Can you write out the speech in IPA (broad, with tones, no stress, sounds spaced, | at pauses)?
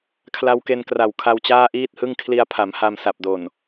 kʰ l a˧ w k e˧ n k r a˨˩ w kʰ a˧ w t͡ɕ aː˥˩ ʔ iː˥˩ t̚ h ɯ˥˩ ŋ kʰ l i˧ a̯ pʰ a˩˦ m h a˧ m s a˨˩ p̚ d o˨˩ n